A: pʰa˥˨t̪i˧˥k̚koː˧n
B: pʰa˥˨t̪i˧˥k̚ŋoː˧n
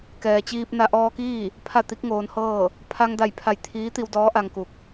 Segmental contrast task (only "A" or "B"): B